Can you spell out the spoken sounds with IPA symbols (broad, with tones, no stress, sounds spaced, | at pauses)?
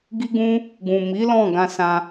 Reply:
ɡ i˦ ɡ ũ˦ | ɡ ũ˨ m i˨˦ l ɔ̃˦˨ ɡ ã˧ s ã˧